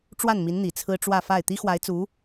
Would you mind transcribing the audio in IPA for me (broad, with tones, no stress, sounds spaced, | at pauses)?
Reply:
ʈ͡ʂ w a˥˩ n m i˧˥ n n̪ i˨˩ t͡sʰ ɹ̩˥ ʈ͡ʂ w ä˥˧ f a˥˩ ɪ̯ t̪ i˥ x w a˧˥ ɪ̯ t͡s u˧˥